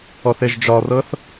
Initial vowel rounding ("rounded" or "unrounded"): rounded